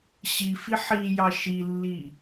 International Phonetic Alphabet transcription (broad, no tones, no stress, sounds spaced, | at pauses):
ɕ i f i ħ i j ɑ ʃ i lː i